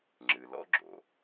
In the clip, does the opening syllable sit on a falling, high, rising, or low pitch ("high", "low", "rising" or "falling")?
low